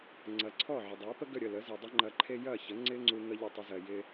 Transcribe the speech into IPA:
ŋ͡ǀ ɐ˩˥ ǀʰ ɔ˥˩ ʕ ə˩ dˤ ɜ˩˥ p ə˥ ɡ ə˥˩ ɾʲ ə˥˩ l ə˩˥ z i˩ dˤ ɪ˥ ŋ͡ǃ ɐ˧ ǃʰ e˥ j ɐ˥˩ ç ə˩˥ ŋ͡ǀ ɪ˥ ŋ͡ǀ u˧ ŋ ə˥ ʎ ʏ˥˩ tˤ ʏ˧ z ɜ˩ j ɪ˧

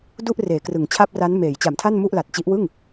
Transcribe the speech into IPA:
d u˥˩ ʔ r eː˩˦ k r ɯ˩˦ ŋ t͡ɕʰ a˥˩ p̚ r a˦˥ n m eː˩˦ j t͡ɕ a˩˦ m tʰ a˥˩ n m u˥˩ ʔ l a˨˩ t̚ t͡ɕ i˦˥ ʔ w ɯ˥˩ ŋ

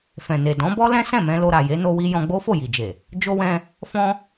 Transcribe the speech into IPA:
f ɛ̃˨ n e˨ d ɔ̃˨˦ b ɔ˦ l ɛ̃˦ s ɛ̃˦˨ m ɛ̃˧ l o˧ ɾ a˨ j e˨˦ n o˧ w i˧ j ɔ̃˧ ɡ͡b o˦ f o˦˨ j i˨ d͡ʒ e˨ | d͡ʒ o˦ w ɛ̃˦ | f ɔ̃˦

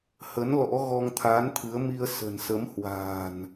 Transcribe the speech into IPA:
h ə˨˦ n l ɔ̰˧˥ ɣ ɔ˧ ŋ t̪ʰ aː˨˦ n t̪ʰ ɨ˨˦ ə̯ m i˧ ə̯ s ə̤˨˩ n s ə˨˦ m h w a̤ː˨˩ n

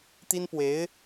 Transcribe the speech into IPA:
t̪ i˥ n p w e˧˥ ɪ̯

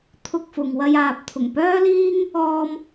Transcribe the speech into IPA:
t̪ʰ ʊ˧ k̚ f ʊ˨ ŋ w ɐ˧ j aː˨ p̚ t̪ʰ ʊ˨˩ ŋ p œː˥ l iː˥ ŋ | ɔː˧ m

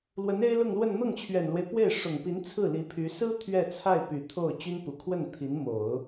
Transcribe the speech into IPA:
l w ə˧˥ n e˥ ɪ̯ l ʊ˥˧ ŋ l w ə˥˧ n n̪ ɤ˥˩ ŋ t͡ɕʰ ɥ ɛ˨˩ n l w e˦ ɪ̯ p w e˥˩ ɪ̯ ʂ ʊ˨˩ ŋ p i˧˥ n t͡sʰ ɹ̩˥˩ l i˧˥ pʰ y˧˥ s ɹ̩˥ t̪ʰ ɥ ɛ˥˧ t͡sʰ a˥˩ ɪ̯ p y˨˩ t̪ʰ o˥˩ ʊ̯ t͡ɕ y˥ n p u˨˩ kʰ w ə˥˩ n t̪ʰ i˧˥ n m o˨˩˦ ʊ̯

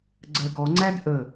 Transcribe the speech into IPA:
ɡ͡ǀ ɜ ɡ ɔ ŋ͡ǀ æ d ʔ ə

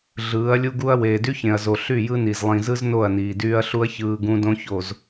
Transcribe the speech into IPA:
ɮ ɯː˨˦ ɐ̯ lʲ u˦ ɡ u˦ ɐ̯ w eː˨ d y˦ ç ẽ˨ ɐ̯ z o˨ ɬ y˦˨ j ɯ˦ n i˨ z lˠ ĩ˨ z ɯ˦ z n o˦˨ ɐ̯ n iː˨ d yː˦ ɐ̯ ɬ u˦ ɐ̯ ç ɯː˦ ɡ ũ˦ d õ˦ ç o˨ z

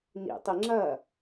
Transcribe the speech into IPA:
n ḭ tˤ i ŋ͡ǁ ɐ

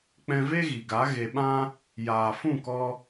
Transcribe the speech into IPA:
k͡p ɛ̃˧ v e˦ ɣ i˨ ɡ a˨˦ ɣ e˧ ɓ ã˦ | j aː˨ f ũ˦˨ k ɔ˧

